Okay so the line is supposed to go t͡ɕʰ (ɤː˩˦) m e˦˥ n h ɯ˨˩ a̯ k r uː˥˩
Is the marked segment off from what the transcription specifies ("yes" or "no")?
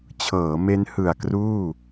no